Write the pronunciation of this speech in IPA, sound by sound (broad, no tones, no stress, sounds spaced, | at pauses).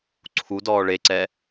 ǀʰ u d ɔː ɭ e ǀ ɛ